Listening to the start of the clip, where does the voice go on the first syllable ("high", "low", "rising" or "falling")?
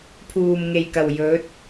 low